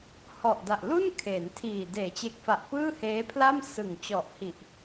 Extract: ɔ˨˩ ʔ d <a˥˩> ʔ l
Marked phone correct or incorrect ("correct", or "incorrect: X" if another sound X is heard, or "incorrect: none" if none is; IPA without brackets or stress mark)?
incorrect: a˨˩